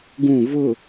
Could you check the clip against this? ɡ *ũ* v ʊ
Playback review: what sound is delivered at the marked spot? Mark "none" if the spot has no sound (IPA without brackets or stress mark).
ũ